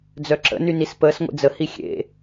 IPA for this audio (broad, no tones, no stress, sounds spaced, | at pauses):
d͡z œ ǁ ə̰ n y n i s p əː s ŋʷ ḛ d͡z ə h i xʲ ḛ